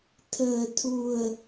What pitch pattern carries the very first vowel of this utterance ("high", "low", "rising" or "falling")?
low